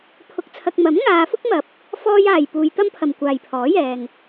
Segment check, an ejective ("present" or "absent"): absent